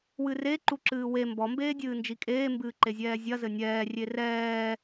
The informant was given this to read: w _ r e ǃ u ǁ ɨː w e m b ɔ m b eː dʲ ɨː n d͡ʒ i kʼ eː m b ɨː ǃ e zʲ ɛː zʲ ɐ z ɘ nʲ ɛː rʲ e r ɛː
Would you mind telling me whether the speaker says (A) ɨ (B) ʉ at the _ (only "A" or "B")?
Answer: A